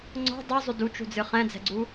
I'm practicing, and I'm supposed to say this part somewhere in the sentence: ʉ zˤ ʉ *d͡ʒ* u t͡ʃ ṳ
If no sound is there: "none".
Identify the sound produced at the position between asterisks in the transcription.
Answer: d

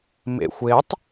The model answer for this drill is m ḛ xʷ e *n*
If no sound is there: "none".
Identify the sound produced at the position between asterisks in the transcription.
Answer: tˤ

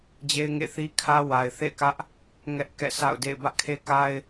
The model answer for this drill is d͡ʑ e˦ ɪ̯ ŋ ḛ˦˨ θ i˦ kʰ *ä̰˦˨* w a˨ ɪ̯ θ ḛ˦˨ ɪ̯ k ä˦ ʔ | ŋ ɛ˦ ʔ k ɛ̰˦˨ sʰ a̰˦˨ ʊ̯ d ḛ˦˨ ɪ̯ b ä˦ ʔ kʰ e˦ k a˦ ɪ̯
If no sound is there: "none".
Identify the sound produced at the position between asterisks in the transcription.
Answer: ä˦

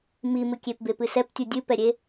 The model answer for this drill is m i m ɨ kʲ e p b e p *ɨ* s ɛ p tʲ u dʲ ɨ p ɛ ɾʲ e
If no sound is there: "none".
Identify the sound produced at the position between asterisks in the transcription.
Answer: ɨ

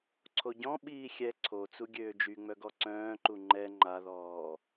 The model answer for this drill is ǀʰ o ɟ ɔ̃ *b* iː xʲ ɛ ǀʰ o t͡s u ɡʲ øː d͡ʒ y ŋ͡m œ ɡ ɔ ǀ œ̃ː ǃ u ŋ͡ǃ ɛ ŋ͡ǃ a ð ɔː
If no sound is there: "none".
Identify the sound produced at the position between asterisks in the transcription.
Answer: ɓ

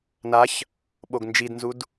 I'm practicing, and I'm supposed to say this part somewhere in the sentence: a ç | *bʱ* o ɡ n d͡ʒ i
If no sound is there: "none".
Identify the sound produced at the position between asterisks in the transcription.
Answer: ɓ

